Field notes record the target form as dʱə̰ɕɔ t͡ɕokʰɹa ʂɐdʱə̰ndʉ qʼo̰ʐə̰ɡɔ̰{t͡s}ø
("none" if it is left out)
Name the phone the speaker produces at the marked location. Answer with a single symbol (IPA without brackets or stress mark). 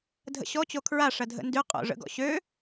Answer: ɕ